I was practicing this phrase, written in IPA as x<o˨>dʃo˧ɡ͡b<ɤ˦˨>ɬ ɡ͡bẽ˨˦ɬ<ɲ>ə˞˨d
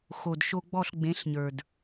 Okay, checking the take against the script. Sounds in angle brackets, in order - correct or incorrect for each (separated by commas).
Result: correct, incorrect, correct